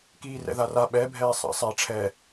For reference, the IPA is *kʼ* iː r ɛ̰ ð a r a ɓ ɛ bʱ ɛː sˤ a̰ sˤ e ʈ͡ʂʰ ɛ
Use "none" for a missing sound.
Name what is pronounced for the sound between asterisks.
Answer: k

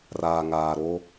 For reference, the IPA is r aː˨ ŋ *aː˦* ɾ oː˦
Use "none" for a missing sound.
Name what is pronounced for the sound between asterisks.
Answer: aː˨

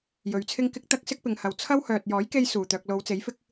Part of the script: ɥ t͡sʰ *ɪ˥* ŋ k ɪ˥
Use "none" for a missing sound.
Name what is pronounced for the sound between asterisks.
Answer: ɪ˥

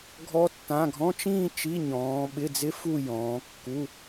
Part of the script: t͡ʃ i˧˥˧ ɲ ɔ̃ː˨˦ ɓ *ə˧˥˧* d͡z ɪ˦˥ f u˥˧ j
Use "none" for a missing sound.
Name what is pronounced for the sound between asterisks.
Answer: ɪ˧˥˧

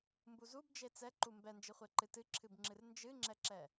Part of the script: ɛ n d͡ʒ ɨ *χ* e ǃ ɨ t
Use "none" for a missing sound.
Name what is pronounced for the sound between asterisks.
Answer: χʷ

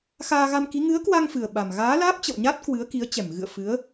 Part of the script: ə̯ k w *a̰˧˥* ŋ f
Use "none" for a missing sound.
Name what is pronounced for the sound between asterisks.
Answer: a˧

